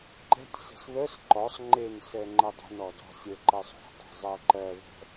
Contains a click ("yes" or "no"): yes